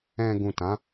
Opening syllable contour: low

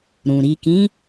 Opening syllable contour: low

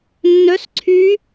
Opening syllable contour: rising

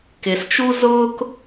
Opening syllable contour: low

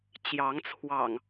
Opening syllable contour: rising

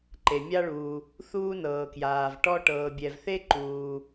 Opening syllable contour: low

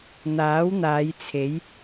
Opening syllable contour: rising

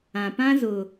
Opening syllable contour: low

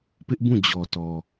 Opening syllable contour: high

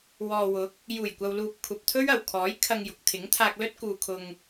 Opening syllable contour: low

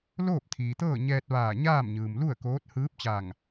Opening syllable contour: falling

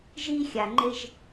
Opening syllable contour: high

